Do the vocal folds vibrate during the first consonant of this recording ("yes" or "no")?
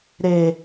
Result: yes